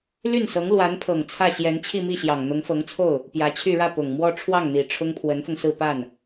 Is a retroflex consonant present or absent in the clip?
present